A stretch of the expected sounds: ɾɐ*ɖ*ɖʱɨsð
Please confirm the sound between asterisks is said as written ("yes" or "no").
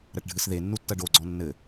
no